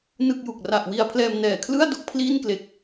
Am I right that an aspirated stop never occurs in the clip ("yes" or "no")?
no